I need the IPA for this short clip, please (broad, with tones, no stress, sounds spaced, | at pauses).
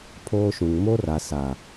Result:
pʰ oː˦ ʃ ũ˨ ŋ m o˦ r a˨ s a˨